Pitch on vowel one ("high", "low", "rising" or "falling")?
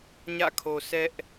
falling